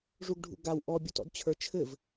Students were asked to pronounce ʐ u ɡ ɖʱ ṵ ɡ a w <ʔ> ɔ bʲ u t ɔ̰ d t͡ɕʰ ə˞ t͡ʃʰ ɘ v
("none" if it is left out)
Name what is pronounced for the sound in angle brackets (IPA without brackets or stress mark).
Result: ʔ